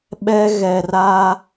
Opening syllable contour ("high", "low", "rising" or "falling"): high